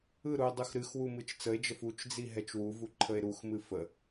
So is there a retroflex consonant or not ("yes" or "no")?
no